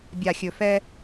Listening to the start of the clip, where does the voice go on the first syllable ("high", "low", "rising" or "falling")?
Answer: low